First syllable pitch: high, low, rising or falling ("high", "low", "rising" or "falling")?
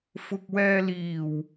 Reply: low